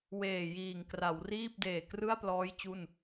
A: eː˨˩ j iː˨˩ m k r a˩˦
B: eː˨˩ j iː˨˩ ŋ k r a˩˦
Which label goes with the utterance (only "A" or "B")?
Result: B